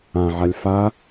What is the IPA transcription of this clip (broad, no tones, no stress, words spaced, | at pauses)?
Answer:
ãʕalʲ fa